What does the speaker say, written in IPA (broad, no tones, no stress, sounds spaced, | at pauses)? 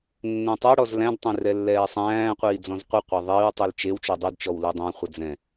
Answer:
nː ɛ̃ tˤ ɛ ɽ ɔ z l æ̃ d tˤ ẽ r ɛ lː ɛː sˤ æ̃ː qʷ iː d͡z ɔ̃ z qʷ ɘ qʷ æ ðˤ iː w tˤ i l t͡ʃ e w t͡ʃ ɔ dˤ u d t͡ʃ ɔ w l u dˤ æ̃ χʷ ə d͡z ɛ̃